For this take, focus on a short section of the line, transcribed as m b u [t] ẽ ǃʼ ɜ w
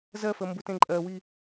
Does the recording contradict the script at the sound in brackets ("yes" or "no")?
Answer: no